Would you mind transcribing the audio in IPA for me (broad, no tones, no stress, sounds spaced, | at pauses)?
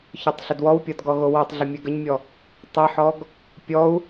ç ɔ tˤ ɬ ə d w ɔ w pʲ ɔ d ɡ ɔ ɣ o w ɔ tˤ ɮ ə mʲ ɛ ɡ ə ɲ mʲ ɔ | tˤ ə ħ ɔ ɡ | pʲ ɔ u̯